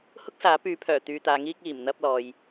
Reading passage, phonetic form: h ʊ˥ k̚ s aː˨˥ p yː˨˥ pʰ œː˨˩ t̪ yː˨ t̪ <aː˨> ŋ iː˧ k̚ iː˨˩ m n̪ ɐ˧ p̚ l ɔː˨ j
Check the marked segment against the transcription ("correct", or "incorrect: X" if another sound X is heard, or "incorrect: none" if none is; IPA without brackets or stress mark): correct